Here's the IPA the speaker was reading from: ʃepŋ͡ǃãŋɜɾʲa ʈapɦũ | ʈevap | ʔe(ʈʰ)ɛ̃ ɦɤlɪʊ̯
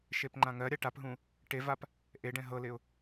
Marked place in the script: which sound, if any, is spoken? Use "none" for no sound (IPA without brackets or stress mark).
ɖ